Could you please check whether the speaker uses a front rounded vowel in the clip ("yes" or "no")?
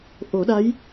no